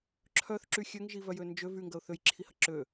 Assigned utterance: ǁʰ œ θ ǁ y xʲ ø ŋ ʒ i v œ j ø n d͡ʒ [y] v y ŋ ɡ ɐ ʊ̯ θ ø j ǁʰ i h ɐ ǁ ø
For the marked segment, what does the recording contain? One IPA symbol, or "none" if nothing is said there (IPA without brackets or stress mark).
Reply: ø